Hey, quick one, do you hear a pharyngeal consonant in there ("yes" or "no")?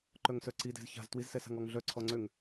no